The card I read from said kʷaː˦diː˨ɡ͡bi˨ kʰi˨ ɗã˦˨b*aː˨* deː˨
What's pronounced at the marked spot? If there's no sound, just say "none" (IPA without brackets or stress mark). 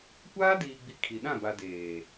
a˨